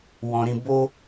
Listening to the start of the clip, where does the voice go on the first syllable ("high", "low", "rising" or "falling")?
low